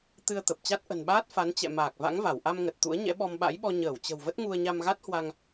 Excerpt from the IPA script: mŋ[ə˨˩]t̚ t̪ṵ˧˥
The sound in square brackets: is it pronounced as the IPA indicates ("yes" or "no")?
yes